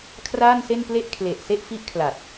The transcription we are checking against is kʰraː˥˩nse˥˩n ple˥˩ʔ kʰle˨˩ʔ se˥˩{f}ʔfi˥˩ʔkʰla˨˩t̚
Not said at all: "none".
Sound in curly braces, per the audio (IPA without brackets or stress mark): none